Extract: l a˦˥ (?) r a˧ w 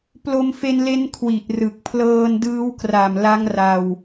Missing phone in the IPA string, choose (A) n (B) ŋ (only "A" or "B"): B